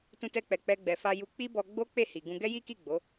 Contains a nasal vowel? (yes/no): yes